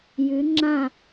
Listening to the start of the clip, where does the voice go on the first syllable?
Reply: rising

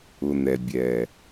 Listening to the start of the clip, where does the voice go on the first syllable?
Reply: low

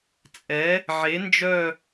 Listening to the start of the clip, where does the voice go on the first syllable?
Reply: rising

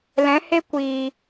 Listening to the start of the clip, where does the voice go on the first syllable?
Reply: rising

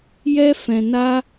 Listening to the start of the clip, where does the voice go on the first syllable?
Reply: high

